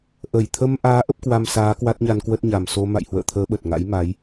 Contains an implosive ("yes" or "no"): yes